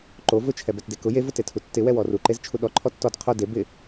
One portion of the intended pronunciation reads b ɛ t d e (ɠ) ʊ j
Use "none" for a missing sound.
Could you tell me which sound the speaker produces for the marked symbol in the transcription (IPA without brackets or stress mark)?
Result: k